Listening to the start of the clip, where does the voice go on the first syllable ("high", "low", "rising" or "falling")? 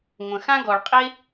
low